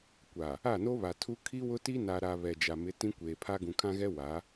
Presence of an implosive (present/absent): absent